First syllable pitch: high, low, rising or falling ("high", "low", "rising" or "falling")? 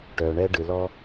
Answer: low